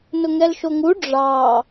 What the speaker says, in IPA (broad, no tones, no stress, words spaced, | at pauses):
nʊŋɛlʃoŋu ɖ͡ʐɑ